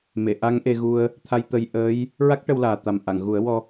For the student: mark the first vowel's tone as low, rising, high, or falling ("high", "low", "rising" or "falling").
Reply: low